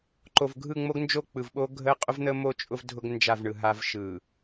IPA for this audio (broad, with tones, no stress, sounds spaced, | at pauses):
ǃ o˨ v ɡʱ ɯ˦˨ ŋ͡m o˦ ɡ n d͡ʒ o˦˨ k͡p ɯ˨ v ɓ o˦ ɡʱ ə˦ qʼ ʊ˦ v n̪ ə˦ m o˦˨ t͡ʃʼ ʊ˦ v dʱ ʊ˦ ɡ n d͡ʒ a˦˨ v ɳ ɯ˨ ɦ a˦ v ʃ ɯ˨